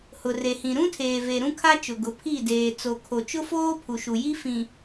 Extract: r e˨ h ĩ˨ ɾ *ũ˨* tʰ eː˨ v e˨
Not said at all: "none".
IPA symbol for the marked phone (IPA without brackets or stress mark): ũ˦